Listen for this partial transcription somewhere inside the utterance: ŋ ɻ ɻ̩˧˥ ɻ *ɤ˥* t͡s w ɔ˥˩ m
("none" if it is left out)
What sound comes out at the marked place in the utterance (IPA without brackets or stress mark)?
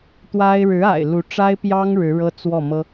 ɤ˥